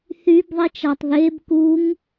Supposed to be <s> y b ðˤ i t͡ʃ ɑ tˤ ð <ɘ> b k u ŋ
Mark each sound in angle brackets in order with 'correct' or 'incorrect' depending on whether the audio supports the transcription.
incorrect: θ, incorrect: e

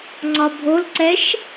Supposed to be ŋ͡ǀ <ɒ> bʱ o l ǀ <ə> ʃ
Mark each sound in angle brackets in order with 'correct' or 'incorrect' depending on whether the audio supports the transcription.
correct, incorrect: ɛ

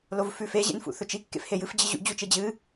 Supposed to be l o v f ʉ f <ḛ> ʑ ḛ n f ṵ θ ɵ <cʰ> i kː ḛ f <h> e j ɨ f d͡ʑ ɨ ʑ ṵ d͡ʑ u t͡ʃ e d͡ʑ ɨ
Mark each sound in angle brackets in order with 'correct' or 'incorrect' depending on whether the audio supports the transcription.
incorrect: e, incorrect: t͡ʃ, correct

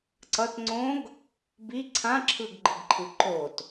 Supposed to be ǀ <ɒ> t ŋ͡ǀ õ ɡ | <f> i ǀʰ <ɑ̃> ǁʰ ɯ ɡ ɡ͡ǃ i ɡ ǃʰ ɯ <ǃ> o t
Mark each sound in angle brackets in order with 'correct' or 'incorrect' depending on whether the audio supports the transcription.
incorrect: ʌ, incorrect: b, incorrect: ã, correct

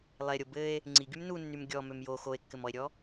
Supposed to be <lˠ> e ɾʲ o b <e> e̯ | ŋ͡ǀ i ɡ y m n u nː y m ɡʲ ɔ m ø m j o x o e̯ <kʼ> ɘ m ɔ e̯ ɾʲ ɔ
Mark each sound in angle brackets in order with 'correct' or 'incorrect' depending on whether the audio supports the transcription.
correct, incorrect: ɘ, incorrect: kː

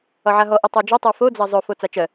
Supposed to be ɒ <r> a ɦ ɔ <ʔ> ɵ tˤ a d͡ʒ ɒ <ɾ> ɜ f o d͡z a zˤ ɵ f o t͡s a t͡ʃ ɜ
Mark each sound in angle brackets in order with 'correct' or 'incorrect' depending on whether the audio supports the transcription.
incorrect: ʕ, correct, incorrect: tˤ

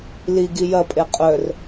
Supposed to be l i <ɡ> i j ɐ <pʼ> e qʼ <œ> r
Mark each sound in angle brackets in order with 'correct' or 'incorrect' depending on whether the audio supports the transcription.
correct, correct, correct

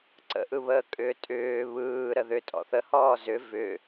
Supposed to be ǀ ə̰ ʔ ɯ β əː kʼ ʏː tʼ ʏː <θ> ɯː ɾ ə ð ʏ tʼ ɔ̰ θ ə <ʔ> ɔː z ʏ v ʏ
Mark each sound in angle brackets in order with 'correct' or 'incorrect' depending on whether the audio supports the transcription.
incorrect: β, incorrect: h

